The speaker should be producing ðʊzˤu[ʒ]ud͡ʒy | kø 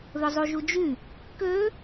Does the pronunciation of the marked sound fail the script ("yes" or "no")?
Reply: no